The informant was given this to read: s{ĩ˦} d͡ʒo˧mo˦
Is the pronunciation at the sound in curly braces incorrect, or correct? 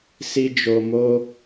incorrect